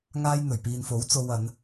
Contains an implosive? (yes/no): no